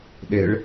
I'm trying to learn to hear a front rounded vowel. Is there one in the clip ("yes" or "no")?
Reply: no